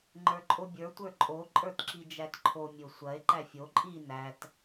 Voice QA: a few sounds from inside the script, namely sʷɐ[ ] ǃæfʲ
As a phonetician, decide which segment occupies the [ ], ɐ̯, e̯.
e̯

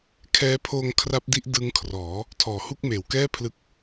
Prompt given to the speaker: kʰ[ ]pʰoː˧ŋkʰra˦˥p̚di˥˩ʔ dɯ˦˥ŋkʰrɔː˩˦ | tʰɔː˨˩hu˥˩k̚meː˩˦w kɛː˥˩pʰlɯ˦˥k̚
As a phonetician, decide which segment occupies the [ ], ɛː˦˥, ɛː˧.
ɛː˦˥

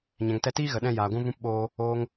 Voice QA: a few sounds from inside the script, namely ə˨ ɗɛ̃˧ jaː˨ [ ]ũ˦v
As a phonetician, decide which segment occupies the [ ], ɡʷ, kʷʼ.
ɡʷ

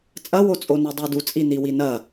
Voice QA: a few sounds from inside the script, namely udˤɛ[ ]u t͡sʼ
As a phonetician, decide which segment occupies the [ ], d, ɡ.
d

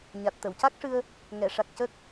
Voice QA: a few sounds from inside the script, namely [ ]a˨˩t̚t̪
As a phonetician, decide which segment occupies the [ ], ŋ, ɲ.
ɲ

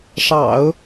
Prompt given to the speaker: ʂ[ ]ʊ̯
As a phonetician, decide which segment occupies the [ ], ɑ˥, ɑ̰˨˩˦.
ɑ̰˨˩˦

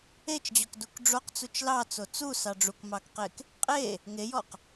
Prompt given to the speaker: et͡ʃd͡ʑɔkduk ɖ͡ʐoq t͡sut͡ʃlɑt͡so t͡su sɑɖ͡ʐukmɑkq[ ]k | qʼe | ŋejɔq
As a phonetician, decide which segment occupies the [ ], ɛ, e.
e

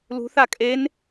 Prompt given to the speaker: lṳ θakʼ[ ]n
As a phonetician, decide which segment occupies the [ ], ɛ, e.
e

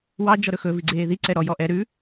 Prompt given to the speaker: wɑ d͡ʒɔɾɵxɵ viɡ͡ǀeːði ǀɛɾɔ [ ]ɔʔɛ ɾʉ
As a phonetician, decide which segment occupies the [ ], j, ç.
j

